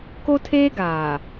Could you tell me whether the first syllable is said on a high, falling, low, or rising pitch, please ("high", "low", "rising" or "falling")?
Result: high